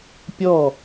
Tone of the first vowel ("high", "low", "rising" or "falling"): falling